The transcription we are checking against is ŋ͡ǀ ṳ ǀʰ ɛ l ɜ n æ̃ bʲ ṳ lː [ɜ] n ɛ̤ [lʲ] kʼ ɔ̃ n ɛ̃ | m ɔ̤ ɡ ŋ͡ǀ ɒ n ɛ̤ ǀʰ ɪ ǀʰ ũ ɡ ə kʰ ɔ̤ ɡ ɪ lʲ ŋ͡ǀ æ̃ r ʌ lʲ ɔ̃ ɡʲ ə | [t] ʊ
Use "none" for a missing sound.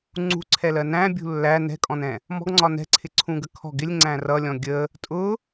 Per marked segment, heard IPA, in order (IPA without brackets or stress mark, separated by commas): æ, none, tʼ